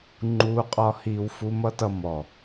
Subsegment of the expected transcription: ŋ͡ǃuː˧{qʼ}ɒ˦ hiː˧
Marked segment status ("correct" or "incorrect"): correct